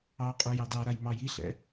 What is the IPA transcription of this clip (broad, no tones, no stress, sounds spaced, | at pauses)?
ɑ qʼ u j ɑ d ɑ ɾ a j m ɑ j i ɬ ɛ̰